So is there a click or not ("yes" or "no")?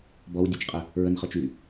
no